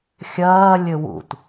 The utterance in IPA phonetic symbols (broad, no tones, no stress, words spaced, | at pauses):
xʲɐː lʲɘwṵt